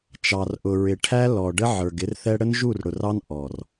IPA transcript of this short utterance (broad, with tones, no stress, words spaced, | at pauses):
t͡ʃɑ˨rʔʊ˨ ɹɪ˨ ʈʰæ˦lɔ˨ɖə˦ ʕə˞˨ɡɪ˦rθɛ˦ ɽə˦nʒu˦˨rɽʊ˨r ɑ˦n ʔɔ˨r